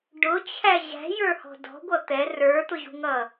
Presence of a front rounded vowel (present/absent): absent